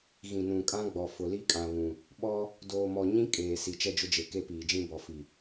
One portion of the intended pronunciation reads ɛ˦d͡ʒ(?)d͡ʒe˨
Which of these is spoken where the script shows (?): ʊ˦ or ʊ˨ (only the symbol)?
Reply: ʊ˦